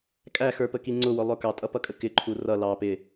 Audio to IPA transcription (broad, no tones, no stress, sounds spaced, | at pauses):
kʼ æ x ə˞ p ə k i ŋ͡ǀ ʊ w ʊ lˠ ʊ k ɑ tʼ ʌ p ʌ kʼ ə k ɪ ǃʰ u r ʌ l ɑ p ɪ